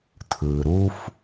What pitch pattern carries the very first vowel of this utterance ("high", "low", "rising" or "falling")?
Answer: low